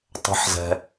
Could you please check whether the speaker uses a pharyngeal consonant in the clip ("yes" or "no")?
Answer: yes